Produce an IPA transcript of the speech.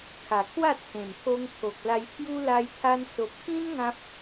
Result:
kʰ a˨˩ kʰ w a˥˧ t͡sʰ ẽ˨˩ m t̪ʰ o˧ ŋ pʰ o˨ k̚ l a˧ j pʰ j u˦ l a˧ j t̪ʰ a˧ n s o˨ p̚ k ĩ˦ n ŋ ã˦ p̚

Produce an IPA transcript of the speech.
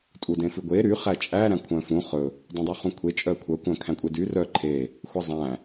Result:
tʼ u d ẽ f ʉ ɡʷ e ɾ y χ æ t͡ʃʼ æ ɾ æ̃ kʷʰ œ̃ f ũ χ ɵ | dˤ ũ dˤ u χ ũ kʷʰ e t͡ʃʼ œ kʷʰ œ kʷ œ̃ kʰ æ̃ kʷʼ e d y r œ ǃʰ e | xʷ æ zˤ æ̃

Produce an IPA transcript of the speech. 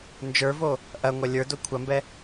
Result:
n d͡ʒ ə˞ v o | ʔ ɐ ŋʷ ɐ lʲ ə˞ d o kʷʰ ɐ m b ɛ

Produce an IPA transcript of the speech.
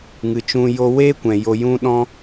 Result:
ŋ ɨ˨ t͡ʃ ũ˧ j o˧ w eː˦ kʷ ɛ̃˨ j o˧ j ũ˦ ɗ ɔ̃˦

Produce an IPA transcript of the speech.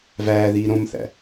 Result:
v æː ð iː ɾ õ m θ æ̰

